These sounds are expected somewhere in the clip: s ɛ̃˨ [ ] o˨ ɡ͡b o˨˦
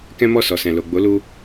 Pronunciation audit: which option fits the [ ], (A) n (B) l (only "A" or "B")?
B